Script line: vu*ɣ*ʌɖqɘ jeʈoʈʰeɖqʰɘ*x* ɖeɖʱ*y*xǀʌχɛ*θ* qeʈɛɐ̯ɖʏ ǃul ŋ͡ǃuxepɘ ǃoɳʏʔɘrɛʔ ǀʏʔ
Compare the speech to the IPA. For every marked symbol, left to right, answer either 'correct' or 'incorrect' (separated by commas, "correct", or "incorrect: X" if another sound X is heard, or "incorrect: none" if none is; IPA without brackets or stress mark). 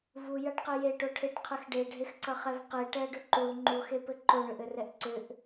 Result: incorrect: j, correct, incorrect: e, incorrect: v